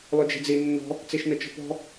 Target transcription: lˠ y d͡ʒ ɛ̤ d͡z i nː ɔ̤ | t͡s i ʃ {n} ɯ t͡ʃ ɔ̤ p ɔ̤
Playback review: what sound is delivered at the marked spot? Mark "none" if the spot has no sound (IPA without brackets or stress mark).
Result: n